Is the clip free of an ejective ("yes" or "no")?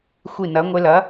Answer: yes